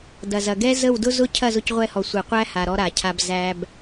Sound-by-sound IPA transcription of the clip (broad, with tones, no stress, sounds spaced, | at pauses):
d ɐ˨ z ɐ˨ ɡ ɛ˦ z ə˦˨ w d ʊ˦ z ʊ˦ cʰ ɐ˦˨ z ʊ˧ c ʁʷ ɛ˧ h ɔ˨ sʷ e˨ qʷ æ˦ h a˨ ɾ ɔ˧ ɾ a˨ cʰ a˧ b z æ˧ b